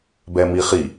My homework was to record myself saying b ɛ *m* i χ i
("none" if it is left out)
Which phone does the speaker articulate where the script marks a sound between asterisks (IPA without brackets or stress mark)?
m